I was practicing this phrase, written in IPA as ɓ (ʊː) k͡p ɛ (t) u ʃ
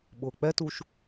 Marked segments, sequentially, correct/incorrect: correct, correct

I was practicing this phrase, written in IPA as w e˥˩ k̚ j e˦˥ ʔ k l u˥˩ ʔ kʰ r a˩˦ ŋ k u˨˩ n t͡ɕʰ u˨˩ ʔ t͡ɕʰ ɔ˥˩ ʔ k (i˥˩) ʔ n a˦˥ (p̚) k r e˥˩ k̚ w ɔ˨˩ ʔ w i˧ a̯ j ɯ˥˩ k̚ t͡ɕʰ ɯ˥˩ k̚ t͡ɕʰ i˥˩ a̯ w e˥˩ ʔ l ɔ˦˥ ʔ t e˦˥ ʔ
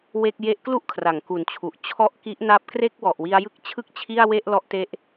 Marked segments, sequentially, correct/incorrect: incorrect: i˦˥, correct

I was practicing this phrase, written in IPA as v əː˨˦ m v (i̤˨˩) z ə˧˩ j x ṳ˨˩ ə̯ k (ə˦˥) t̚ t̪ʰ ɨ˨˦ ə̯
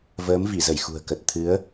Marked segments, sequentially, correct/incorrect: incorrect: i˧˩, incorrect: ə˨˩

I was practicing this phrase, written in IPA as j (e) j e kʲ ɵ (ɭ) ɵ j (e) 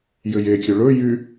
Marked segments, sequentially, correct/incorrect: incorrect: ɘ, correct, incorrect: y

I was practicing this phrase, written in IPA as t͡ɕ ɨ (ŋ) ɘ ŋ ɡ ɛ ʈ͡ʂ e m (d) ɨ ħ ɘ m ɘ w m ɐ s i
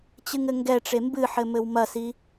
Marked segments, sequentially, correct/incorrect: correct, incorrect: b

